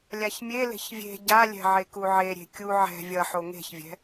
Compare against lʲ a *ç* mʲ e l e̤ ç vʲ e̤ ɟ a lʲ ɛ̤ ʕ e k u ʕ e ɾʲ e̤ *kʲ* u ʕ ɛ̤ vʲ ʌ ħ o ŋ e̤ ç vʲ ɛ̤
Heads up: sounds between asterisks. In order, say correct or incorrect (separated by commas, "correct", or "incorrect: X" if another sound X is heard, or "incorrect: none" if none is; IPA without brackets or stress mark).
correct, correct